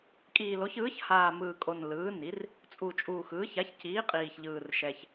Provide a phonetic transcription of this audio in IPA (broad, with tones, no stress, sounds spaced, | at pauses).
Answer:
kʼ iː˨˩ l o˩˥ ç ɯː˩˥ ç h aː˨˩ m ɯː˨˩ kʼ o˨˩ n l ɯː˩˥ n i˩˥ r | t͡sʼ u˨˩ t͡ʃʼ uː˨˩ x ɯː˩˥ ç a˩˥ ç c iː˩˥ qʼ iː˨˩ ç ʎ ɯː˨˩ r ʃ ɛ˨˩ ç